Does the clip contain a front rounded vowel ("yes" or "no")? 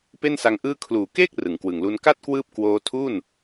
no